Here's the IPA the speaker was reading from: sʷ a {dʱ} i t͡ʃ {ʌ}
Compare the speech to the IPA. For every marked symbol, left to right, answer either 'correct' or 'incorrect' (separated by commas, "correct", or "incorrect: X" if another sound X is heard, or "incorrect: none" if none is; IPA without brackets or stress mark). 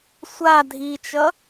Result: correct, correct